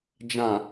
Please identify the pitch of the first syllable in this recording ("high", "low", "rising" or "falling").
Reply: low